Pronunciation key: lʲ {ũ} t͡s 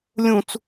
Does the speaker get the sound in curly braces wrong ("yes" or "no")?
no